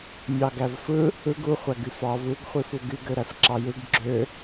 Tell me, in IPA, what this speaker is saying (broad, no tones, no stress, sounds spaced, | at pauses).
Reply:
mʲ ɑ ɡ æ v f ɯ | ɯ ɡ u χʷ æ ɡ y f ɑ v u ɡ χʷ i f u ɡ y ɡ ø ɾ æ f ǁ ɑ j ɯ ɡ ɡ͡ǁ ø